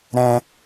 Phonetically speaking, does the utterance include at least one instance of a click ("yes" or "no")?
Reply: no